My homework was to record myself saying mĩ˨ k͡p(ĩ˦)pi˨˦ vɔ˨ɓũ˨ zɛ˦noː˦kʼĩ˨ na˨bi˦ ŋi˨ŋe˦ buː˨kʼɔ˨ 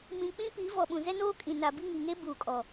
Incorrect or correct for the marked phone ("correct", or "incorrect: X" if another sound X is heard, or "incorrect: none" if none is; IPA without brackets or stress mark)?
correct